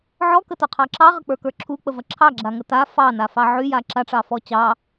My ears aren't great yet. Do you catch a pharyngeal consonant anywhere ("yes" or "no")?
yes